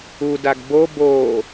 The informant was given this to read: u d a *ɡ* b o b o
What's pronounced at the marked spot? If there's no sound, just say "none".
ɡ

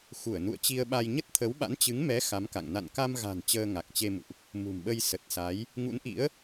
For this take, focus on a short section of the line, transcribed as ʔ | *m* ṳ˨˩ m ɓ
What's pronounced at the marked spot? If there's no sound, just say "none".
m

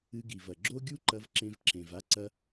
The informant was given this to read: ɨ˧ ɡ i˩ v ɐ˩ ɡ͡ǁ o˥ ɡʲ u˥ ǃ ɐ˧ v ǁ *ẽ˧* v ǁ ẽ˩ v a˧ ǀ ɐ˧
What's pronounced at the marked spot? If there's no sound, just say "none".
ẽ˧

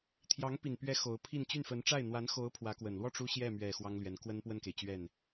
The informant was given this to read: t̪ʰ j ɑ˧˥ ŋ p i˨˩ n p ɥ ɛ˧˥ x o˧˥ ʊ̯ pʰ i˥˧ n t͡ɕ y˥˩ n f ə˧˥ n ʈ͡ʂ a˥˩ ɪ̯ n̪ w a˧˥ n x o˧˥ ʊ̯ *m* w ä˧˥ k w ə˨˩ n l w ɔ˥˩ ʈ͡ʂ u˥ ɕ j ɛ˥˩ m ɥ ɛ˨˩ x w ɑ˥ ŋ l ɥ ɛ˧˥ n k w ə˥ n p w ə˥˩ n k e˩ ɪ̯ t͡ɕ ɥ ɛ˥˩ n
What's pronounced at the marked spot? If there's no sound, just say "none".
pʰ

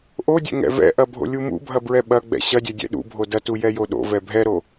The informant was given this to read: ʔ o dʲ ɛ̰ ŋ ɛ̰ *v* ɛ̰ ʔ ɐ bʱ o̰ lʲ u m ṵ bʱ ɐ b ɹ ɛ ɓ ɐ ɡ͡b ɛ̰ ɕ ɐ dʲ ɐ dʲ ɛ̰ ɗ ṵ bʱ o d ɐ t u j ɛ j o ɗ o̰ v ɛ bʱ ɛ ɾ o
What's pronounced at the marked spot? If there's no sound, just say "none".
v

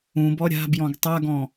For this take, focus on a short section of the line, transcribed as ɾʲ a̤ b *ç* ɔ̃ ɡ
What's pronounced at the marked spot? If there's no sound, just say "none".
j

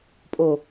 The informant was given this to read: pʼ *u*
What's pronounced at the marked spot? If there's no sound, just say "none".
o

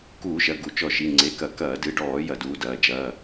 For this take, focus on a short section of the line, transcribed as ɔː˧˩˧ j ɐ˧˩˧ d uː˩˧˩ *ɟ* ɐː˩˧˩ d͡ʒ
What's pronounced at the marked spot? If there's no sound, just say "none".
d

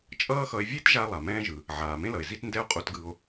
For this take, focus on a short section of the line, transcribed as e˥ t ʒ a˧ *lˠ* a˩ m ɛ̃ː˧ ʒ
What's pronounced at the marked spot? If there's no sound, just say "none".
lˠ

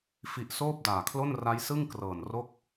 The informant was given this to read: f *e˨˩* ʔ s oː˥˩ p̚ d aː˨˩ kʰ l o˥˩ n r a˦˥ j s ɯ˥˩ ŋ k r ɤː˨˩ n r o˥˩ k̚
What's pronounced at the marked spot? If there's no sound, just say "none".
i˨˩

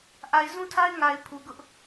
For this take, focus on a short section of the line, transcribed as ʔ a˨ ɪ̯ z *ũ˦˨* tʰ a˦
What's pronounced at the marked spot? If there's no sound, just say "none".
ũ˦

